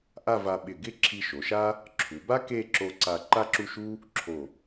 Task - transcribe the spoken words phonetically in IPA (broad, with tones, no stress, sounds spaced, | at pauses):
ʔ a˥˧ v a˧ ɓ ɪ˧˩ ɡ ɪ˥ ǁʰ i˧ ʃ o˩˧ ʃ a˥ | ǁʰ u˩˧ b a˥ k e˥˧ ǁ o˧ ǀ a˧ ǃ a˥ ǁ u˥˧ ʃ u˥ | ǁʰ o˧˩